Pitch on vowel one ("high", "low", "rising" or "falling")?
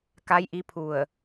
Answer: rising